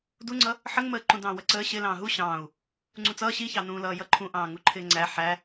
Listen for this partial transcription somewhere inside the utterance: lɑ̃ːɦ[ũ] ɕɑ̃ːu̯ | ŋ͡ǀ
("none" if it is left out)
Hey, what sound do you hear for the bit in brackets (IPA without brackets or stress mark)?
u